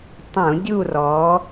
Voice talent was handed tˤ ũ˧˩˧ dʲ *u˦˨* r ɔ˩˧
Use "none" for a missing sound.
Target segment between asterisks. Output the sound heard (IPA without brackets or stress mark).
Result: u˦˨